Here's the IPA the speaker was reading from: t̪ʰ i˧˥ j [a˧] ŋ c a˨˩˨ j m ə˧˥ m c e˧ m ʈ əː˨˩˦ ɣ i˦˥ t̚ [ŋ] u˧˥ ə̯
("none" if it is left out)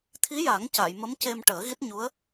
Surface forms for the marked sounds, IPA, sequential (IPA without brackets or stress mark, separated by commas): a˨˩˦, ɲ